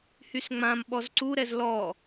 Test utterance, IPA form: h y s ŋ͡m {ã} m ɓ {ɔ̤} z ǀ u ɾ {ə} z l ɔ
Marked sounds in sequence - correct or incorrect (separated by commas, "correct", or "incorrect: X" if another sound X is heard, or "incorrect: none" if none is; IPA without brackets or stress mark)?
correct, incorrect: ɔ, incorrect: ɛ